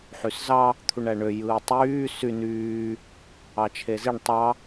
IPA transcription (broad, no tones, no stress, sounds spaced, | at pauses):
ħ y s z ɑ | t̪ʰ u ɳ æ ɳ ø j ɯː tˤ yː s y n yː | ɑ t͡ʃʰ e z i ɳ tˤ ɑ